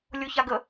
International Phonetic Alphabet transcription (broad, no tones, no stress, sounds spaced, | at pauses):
lʲ o ç a ɡ ə